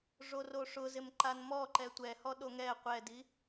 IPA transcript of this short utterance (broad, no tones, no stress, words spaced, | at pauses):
ʐoroʂʊzɪm ǃanmɔǃɛ tʷɛhɔ ɗoŋɛ qʷɛdi